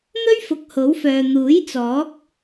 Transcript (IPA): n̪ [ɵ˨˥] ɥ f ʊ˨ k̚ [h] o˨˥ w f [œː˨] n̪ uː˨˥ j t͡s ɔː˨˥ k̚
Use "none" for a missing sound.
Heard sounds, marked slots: ɵ˥, h, œː˨

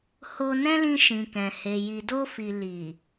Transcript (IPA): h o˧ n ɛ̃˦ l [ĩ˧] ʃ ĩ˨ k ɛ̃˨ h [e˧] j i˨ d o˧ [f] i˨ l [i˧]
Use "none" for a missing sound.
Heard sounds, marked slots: ĩ˧, e˨, f, i˨

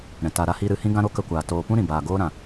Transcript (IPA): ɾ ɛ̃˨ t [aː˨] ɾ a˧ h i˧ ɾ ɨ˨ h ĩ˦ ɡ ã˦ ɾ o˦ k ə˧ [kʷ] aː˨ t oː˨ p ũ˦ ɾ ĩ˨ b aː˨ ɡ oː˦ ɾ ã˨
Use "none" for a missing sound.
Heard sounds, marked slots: a˨, kʷ

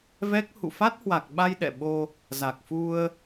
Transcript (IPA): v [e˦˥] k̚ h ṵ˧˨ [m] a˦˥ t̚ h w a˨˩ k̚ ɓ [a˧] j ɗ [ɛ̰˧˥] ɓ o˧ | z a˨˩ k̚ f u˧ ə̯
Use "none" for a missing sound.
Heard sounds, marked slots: ɛ˦˥, f, a˧, ɛ̰˧˨

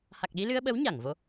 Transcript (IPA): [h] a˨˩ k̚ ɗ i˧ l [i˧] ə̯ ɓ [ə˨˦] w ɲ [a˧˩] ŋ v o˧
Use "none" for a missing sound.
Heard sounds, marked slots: h, ɨ˧, ə˨˦, a˧˩

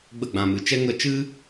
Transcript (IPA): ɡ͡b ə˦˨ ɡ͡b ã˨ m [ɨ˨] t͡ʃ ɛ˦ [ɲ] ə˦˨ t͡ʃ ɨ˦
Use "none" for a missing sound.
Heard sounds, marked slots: ɨ˨, ŋ

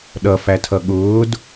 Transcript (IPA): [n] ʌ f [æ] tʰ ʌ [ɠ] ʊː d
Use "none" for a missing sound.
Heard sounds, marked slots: ɗ, æ, ɠ

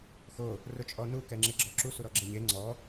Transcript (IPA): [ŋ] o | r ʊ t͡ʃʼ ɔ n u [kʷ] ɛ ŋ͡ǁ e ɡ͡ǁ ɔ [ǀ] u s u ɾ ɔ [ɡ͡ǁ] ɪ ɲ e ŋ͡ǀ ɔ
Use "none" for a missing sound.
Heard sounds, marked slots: x, k, ǁ, ɡ͡ǁ

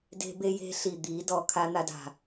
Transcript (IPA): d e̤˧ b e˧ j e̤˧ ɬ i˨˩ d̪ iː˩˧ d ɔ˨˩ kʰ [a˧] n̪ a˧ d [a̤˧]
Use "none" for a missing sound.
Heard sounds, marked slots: a˧, a̤˨˩

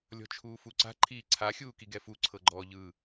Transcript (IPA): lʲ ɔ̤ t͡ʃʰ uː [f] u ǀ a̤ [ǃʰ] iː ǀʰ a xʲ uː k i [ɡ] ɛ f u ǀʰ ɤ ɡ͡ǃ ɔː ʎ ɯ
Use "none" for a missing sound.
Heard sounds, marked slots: f, ǃʰ, ɡ

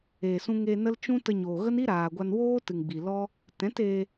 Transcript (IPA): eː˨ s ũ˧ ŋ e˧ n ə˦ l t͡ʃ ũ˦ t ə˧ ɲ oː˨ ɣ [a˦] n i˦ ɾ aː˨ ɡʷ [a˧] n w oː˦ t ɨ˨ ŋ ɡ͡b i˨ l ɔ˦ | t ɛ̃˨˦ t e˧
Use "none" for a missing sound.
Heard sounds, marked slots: ə˦, a˧

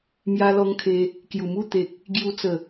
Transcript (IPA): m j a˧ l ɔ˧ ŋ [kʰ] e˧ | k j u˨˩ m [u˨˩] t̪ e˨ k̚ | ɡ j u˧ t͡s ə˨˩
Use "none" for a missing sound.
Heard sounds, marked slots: kʰ, u˥˧

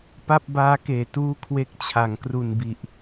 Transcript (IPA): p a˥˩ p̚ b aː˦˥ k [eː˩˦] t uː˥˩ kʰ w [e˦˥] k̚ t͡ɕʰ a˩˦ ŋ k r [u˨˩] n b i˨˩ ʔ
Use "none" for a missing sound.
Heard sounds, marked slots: eː˨˩, e˦˥, u˨˩

